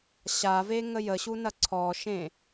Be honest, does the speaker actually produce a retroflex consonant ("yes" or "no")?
no